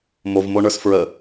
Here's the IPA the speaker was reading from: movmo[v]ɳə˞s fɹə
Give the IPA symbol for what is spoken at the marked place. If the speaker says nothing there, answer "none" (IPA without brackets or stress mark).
none